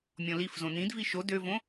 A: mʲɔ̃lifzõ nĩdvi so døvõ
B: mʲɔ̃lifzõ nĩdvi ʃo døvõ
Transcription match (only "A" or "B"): B